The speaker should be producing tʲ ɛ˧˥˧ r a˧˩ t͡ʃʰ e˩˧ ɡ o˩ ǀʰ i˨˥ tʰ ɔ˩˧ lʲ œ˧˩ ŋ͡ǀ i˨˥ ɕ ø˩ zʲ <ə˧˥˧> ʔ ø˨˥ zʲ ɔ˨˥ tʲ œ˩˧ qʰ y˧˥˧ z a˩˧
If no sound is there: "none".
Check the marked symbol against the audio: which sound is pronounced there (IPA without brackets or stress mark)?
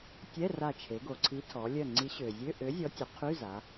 ø˧˥˧